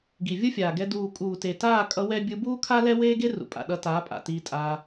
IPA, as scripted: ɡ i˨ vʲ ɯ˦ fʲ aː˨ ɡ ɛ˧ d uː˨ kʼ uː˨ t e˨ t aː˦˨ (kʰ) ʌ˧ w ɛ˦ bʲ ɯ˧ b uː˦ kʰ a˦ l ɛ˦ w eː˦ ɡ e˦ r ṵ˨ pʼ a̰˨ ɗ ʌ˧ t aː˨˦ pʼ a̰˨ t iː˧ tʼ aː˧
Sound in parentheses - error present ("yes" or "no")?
yes